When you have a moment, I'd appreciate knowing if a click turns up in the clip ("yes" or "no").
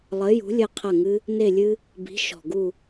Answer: no